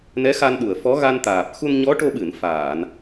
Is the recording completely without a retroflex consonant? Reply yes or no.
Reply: no